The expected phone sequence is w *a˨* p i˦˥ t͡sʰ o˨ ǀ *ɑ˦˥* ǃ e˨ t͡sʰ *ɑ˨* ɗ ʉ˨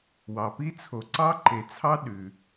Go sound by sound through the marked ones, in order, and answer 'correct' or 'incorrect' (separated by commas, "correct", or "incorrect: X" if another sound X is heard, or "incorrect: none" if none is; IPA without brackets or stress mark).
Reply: incorrect: ɑ˨, correct, incorrect: ɑ˦˥